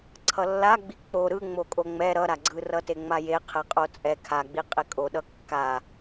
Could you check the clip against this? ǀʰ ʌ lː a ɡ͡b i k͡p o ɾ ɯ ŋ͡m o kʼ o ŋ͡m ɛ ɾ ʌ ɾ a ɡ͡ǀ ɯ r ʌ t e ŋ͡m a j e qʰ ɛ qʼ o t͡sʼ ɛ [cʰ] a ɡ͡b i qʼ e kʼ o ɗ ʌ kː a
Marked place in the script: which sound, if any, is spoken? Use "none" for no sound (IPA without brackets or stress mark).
kʰ